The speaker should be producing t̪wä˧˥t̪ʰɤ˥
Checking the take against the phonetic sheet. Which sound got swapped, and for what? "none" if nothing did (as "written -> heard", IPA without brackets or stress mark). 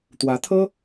none